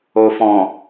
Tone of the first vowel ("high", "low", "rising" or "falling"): low